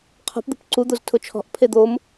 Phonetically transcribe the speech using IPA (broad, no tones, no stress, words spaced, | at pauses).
qʰɔ̤pd̪ṳp ǀud̪oz tʰʊt͡ʃʰɔ̤ʔ pʰed̪om